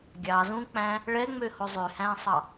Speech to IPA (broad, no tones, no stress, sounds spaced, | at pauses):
ɡʲ ɑ z ũ k͡p æ̃ | ɭ ɛ ŋ͡m ø h o zˤ ø h æ̃ sˤ ɑ